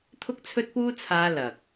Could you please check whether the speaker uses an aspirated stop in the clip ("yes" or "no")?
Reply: yes